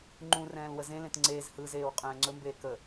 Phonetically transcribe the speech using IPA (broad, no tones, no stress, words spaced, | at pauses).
ŋ͡ǃũrɛ̃ːl wəzẽlẽt ŋ͡ǀeːz hɯzeːw qʼɛ̃ːŋ͡ǀɵmbeː kə